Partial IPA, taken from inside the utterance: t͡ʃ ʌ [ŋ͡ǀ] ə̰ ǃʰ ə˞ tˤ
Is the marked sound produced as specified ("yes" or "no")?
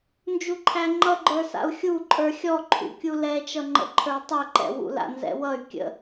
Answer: no